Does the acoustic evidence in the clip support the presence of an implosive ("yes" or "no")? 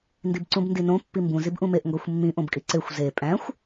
no